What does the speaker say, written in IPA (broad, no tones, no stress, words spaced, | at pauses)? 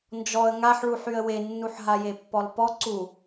nd͡ʒɔə̯ ŋaħɭuħyə̯ wenːuħ ɦajepːɔlˠpɔ ǀu